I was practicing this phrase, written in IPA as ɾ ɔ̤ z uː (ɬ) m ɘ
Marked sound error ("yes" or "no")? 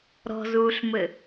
no